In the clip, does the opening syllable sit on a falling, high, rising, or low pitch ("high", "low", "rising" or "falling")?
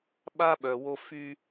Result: high